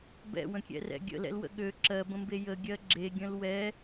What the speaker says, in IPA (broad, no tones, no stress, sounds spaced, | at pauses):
b ɛ̰ w ə̃ kʲ ɛ̰ r ɛ̰ ɡʲ ə̰ l ɛ̰ l w ə̰ ɠ ø ǁ ɜ b ə̃ m b e j ə ɡʲ ɜ ɡ͡ǁ e ɡʲ ə̃ l w ɛ